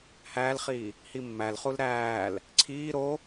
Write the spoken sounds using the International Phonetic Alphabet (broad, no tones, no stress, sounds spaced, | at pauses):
h æː l χ iː | h i mː æ l χ u l ɾ æː l | ǀʰ iː ɾ o